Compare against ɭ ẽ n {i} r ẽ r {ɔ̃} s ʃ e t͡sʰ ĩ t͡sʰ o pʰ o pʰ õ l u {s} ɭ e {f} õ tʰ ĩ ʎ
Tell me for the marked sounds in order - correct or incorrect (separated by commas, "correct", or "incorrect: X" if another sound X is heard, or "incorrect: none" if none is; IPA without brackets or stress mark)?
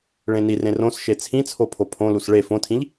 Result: correct, incorrect: õ, correct, correct